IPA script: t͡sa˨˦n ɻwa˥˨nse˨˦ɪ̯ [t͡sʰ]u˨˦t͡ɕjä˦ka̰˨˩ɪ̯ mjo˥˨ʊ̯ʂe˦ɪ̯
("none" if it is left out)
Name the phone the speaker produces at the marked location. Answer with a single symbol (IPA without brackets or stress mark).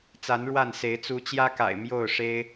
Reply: t͡s